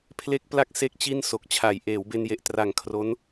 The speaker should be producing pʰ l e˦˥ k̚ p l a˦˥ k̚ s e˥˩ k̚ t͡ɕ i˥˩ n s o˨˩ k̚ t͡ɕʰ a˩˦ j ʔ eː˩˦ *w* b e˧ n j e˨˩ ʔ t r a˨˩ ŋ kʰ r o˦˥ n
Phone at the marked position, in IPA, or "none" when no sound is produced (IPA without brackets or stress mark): w